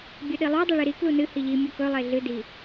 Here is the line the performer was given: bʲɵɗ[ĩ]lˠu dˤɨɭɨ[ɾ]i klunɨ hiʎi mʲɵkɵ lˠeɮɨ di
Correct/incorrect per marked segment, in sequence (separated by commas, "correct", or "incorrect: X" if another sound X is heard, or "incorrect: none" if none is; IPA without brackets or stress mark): incorrect: i, correct